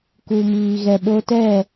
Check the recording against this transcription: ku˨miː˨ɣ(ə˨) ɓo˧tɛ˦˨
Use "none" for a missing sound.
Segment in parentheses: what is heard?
ɛ˨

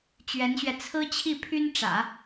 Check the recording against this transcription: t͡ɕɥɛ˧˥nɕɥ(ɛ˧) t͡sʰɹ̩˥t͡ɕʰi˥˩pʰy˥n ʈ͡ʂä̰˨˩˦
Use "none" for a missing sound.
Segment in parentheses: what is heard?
ɛ˧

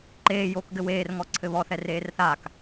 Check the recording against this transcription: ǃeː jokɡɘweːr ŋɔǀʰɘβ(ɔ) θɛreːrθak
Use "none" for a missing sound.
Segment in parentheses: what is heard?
ɔ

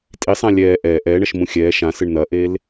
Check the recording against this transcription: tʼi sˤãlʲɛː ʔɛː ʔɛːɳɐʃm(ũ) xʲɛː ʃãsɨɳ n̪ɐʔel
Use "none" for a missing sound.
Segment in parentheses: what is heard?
ũ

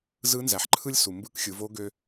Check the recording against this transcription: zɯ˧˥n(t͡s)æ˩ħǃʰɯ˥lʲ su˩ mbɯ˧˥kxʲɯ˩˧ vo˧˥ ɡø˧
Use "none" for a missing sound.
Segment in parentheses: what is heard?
z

